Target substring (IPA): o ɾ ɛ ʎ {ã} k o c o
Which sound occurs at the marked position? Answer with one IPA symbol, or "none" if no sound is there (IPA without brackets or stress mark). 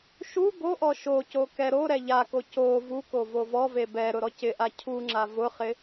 a